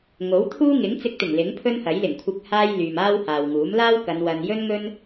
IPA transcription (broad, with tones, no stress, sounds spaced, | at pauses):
ŋ o˨˥ w t̪ʰ uː˥ ŋ ɪ˨˥ ŋ t͡s ɪ˧ k̚ t̪ ɪ˨˩ ŋ l ɪ˨˥ ŋ pʰ ɵ˥ n h ɐ˨˥ j l ɪ˨˩ ŋ kʷʰ ɪ˨ k̚ h aː˧ j l yː˨ m aː˥ w h aː˨ w ŋ uː˨˥ m l aː˥ w k ɐ˨˧ n w ɐ˨ n j ɵ˥ n ŋ ɵ˥ n